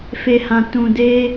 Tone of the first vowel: low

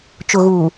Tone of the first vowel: low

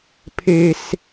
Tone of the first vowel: high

